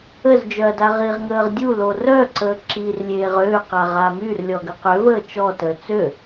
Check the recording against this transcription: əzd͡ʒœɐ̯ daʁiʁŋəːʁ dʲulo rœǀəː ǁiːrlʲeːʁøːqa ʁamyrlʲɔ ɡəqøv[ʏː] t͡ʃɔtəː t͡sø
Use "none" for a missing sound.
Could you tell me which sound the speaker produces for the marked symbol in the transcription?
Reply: əː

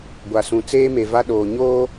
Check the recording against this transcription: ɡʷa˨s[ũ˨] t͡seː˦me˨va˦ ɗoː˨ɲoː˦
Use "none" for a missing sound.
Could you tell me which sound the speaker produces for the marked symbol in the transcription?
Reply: ũ˨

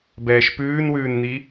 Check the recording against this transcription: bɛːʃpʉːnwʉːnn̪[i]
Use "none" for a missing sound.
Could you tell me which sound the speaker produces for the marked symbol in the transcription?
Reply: i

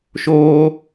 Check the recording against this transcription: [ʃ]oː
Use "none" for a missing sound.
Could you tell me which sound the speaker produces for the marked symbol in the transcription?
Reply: ʃ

